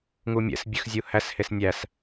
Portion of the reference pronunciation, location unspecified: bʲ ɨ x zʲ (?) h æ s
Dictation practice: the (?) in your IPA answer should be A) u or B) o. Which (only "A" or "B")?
A